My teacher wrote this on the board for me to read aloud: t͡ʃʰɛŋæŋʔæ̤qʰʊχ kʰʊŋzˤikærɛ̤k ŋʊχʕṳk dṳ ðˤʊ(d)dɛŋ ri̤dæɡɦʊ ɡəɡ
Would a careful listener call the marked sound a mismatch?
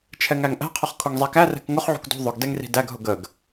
yes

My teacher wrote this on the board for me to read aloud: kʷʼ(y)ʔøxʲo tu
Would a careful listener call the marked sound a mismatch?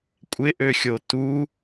yes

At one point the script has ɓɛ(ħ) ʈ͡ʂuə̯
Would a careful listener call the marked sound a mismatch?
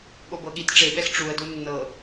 yes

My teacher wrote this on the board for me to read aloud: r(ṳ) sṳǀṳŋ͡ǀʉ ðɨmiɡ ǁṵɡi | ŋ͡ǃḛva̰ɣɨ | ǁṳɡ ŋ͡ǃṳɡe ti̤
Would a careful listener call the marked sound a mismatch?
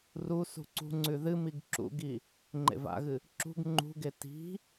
yes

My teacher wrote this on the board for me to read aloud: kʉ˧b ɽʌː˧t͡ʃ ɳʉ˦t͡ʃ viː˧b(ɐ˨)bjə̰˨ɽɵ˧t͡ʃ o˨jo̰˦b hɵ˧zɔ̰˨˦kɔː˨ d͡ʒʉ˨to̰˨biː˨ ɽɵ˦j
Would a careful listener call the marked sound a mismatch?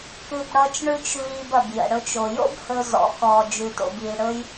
no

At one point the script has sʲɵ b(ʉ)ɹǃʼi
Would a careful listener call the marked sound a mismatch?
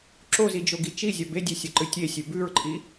no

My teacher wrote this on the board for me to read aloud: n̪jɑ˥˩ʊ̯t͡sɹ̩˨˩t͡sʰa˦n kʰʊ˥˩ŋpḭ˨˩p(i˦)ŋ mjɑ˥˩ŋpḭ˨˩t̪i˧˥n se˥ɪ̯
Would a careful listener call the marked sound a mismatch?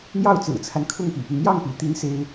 no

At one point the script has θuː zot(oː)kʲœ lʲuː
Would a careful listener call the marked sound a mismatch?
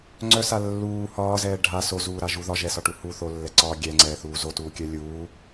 yes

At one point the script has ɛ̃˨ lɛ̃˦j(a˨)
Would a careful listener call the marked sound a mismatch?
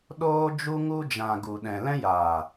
yes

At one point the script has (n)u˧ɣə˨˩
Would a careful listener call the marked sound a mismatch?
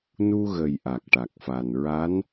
no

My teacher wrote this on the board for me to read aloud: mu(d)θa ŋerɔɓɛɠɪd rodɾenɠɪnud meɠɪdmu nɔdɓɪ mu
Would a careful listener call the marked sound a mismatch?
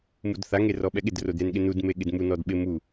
no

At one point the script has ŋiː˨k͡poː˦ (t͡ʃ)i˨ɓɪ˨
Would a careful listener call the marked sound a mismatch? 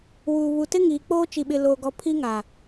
no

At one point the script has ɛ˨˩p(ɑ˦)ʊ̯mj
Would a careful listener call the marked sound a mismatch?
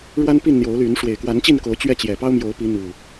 no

